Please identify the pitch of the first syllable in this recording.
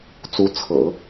rising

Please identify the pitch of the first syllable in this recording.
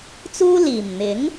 high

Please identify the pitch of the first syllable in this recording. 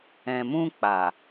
low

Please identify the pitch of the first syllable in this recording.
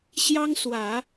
high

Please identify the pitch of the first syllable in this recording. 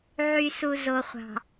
low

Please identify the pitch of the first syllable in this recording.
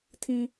low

